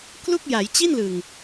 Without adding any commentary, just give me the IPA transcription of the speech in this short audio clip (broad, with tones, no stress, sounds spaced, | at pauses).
k l u˥˩ k̚ j a˩˦ j t͡ɕ i˥˩ n l ɯ˨˩ ŋ